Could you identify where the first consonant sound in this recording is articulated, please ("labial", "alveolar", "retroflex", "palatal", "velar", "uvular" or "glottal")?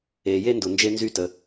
palatal